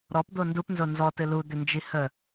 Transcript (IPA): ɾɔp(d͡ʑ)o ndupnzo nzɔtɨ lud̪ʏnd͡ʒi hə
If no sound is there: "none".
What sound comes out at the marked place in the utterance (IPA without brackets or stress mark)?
d̪